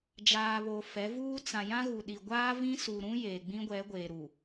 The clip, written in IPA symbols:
d͡ʒ aː˨ β o˨ f ɛ˨˦ v uː˦ t͡s ã˨ j ã˦ ɣ u˨ ɗ i˨ ɡʷ aː˦ v ĩ˦ s u˨ ɾ ũ˦ j e˨ ɡ͡b ĩ˦ ɡʷ ɛ˨˦ ɡʷ eː˨ ɾ u˨

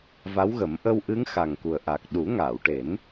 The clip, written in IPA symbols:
v a˧˥ w ɣ ə˨˩˦ m ʔ ə˧ w ʔ ɨ˧˥ ŋ x a˨˩ ŋ k u˨˩ ə̯ ʔ a˨˩ k̚ ɗ u˨˩˦ ŋ aː˨˩˨ w ʈ e˨˩˦ n

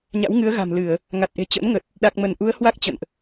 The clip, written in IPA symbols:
ɲ a̰˧˥ w ŋ ɨ˨˦ ə̯ ɣ a̤˨˩ m l ɨ˧˩˨ ə̯ | ŋ a˨˩ t̚ ʔ e̤˨˩ t͡ɕ ə̰˧˥ n ŋ ə˨˩ t̚ | ɗ a˨˩ k̚ m ə˧˩ n ʔ u˨˦ ə̯ h w a˦˥ k̚ t͡ɕ ə̰˧˨ n ʔ

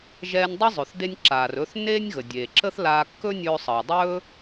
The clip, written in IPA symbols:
ʒ ɛː˧ nʲ dˤ ə˥ zˤ ɵ˩ θ d e˧ nʲ ǁ aː˩ r ɵ˧ θ nː eː˥ nʲ ɣ ə˩ dʲ eː˩ ǁ ə˥ θ l aː˧ kː ɵ˥ nʲ ɵː˧ sˤ əː˩ dˤ ɵː˥

